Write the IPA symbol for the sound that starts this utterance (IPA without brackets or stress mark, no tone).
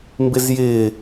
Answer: m